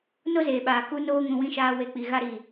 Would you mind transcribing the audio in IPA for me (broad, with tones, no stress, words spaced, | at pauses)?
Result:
no˦zeː˨ɓaː˨ ku˦noː˦ŋũ˧ wĩ˧ʃaː˧ we˧k͡pi˨ ɣa˧ɾi˨